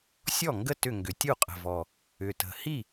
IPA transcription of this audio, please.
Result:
sʲ ɔ˥˩ ŋ ɡ ə˥˩ t ʏ˥˩ ŋ ɡ ʏ˨˩˦ tʲ u˥˩ qʼ ə̤˨˩ v ɔ˨˩ | ʏ˨˩ t ə̤˨˩ h i˥˩

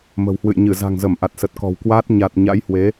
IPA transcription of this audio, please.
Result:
m ə̤˨˩ w h w ɨ̰˧˨ j ɲ ɨ˧˩ z a̤˨˩ ŋ z ə˧˩ m ʔ a˨˩ t̚ s ə˨˩ t̚ k ɔ̤˨˩ w k w aː˦˥ t̚ ɲ a˨˩ t̚ ɲ a̰˧˥ j h w e˨˦

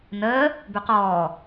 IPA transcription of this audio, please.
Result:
n əː | b ʉ q ɔː

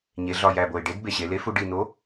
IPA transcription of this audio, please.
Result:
ɲ e˩˧ ɮ ɒ˨˩ j æ˨˩ b o˨˩ ɪ̯ ɖ e˨˥ d b e˨˩ ɕ e˩˧ l e˨˥ f u˩˧ ɖ i˨˩ n̪ o˨˥

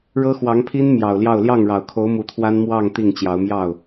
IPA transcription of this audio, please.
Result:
ɻ ɤ˥ x w ɑ˧˥ ŋ pʰ i˥ n m j ɑ˨˩ ʊ̯ l j ɑ˥˧ ʊ̯ l j ɑ˥˩ ŋ ɻ ɑ˨˩ ʊ̯ kʰ o˧˥ ʊ̯ m u˧˥ t̪ʰ w a˥ n m w ɑ˥˧ ŋ t̪ i˥˩ ŋ t͡ɕ j ɑ˧˥ ʊ̯ m j ɑ˥˩ ʊ̯

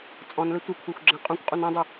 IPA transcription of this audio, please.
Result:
t͡sʼ ɔ̃ n l ɘ tʷ ɘ kʷʰ e xʷ ɡ͡ǁ ɐ̃ qʼ ũ kʷ qʼ u n ɐ̃ dˤ ɨ

